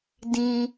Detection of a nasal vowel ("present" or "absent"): present